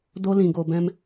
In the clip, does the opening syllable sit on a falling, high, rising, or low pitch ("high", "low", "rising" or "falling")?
high